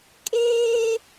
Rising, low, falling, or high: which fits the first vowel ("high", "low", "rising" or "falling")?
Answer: high